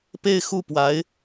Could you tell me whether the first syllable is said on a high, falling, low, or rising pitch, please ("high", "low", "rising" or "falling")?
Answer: falling